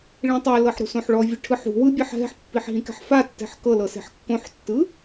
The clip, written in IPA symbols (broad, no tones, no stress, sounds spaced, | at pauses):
ɭ ĩ tˤ ɛ l ɤ ħ ɾ ṳ s õ ħ ɭ ɔ vʲ ɯ ʈʰ ɯ ħ ṳ w ɯ bʲ ɛ ħ ɦ ɛ̤ ħ pː i ħ ɦ ĩ k ɛ̤ ħ f a tː ɛ̤ ħ k ɤ l ɤ s e̤ ħ kː õ ħ tː ɯ